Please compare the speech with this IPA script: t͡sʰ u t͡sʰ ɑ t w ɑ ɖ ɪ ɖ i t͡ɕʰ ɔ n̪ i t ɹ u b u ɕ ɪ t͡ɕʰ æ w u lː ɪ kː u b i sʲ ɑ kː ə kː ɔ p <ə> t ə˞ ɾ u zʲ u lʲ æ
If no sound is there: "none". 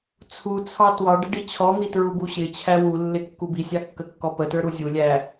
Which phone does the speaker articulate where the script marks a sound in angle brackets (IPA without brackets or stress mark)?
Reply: ə